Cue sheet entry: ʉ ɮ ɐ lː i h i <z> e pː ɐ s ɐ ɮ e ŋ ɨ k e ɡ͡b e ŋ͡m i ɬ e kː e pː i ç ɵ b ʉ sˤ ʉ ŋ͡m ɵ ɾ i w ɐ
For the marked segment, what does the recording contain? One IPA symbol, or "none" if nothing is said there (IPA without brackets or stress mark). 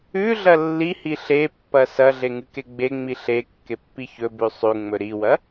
ɬ